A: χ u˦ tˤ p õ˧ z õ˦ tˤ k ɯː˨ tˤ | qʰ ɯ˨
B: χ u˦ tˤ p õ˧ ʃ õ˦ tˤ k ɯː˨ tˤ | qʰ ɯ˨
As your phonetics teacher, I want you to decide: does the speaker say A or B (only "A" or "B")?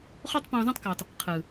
A